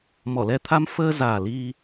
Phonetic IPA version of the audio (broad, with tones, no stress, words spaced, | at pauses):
mɔ˧˩lɛ˧t̪ʰa˧m fəː˧zaː˨˩ li˧